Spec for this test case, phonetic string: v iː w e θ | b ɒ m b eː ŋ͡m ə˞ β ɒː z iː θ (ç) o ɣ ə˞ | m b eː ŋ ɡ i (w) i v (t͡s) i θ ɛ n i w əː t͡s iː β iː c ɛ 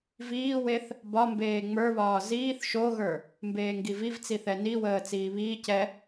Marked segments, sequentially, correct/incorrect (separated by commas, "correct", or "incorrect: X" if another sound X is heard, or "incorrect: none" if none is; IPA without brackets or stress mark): incorrect: ʃ, incorrect: v, correct